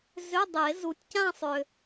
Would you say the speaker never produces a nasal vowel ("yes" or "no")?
no